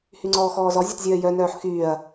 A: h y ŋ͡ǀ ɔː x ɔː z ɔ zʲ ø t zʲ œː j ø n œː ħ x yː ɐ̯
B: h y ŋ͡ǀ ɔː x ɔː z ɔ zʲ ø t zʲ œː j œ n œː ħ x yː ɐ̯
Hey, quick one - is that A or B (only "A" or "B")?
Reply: B